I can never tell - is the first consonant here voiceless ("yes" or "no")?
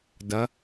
no